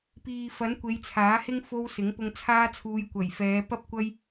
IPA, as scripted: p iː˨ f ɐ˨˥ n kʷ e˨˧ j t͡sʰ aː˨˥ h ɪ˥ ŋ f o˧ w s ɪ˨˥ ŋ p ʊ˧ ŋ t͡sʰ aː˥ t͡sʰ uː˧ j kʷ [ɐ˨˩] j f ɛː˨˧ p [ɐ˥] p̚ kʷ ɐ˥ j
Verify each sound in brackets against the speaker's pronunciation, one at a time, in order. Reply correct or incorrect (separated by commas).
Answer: correct, correct